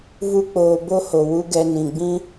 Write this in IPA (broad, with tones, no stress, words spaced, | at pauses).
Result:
vu˦k͡poː˧ bo˦ho˨ wu˦ɡɛ˧nĩ˨ ɡ͡bĩ˦